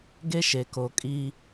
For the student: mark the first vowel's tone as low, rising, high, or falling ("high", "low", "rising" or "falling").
high